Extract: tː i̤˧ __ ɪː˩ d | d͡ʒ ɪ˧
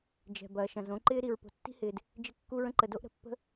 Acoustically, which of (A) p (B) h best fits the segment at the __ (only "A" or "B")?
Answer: B